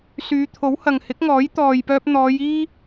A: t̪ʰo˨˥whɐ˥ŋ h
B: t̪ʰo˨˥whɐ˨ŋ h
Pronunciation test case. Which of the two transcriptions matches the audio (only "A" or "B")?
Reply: B